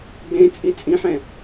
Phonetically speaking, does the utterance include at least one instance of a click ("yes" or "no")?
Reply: no